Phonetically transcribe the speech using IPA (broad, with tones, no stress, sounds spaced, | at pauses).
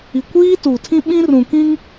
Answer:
i˨ kʷ iː˦ t u˨ tʰ ĩ˦ ɓ ĩ˦ r ũ˨ k ĩ˦ ŋ